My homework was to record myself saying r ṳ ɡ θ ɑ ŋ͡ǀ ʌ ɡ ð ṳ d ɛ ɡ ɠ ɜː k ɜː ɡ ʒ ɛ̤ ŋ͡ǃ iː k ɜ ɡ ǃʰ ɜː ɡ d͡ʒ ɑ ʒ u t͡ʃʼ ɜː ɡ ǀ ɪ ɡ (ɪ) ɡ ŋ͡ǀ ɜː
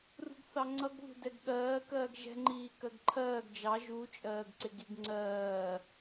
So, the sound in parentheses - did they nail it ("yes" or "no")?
no